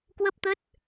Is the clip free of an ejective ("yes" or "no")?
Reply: yes